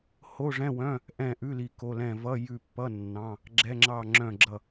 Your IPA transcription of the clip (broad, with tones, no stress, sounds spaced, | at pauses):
h o˧˥˧ ʐ ɛ̃˧˥˧ w œ̃˧˥˧ | ʔ ɛ̃˦˨ ʔ ʉ˧˥˧ l i˦˨ k o˧˥˧ l ɛ̃˦˨ v ʌ˧˥˧ j ʉ˦˨ pː ʌ˧˥˧ nː ɑ̃˧˥˧ | ɡ͡ǁ ɛ˧˥˧ ŋ͡ǁ ɑ˦˨ ŋ͡ǁ œ̃˦˨ ɡ͡ǁ ʌ˦˨